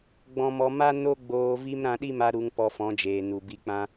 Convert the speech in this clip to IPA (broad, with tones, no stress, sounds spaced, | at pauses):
ɡ͡b ɔ̃˧ m ɔ˧ m a˦ n o˦ ɡ͡b oː˧ v i˦ m ɾ ã˧ ɗ i˦ m a˧ ɾ u˧ ŋ p ɔ˧ f ɔ̃˨˦ d͡ʒ eː˨ n u˨ b i˧ k͡p ã˦